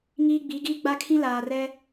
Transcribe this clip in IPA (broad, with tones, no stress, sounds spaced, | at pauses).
ŋ iː˦ ɡ͡b i˨˦ ɡ iː˦ ɡ͡b a˦ kʰ ĩ˦ l aː˨ r ɛ˦